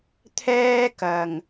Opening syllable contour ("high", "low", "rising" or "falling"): high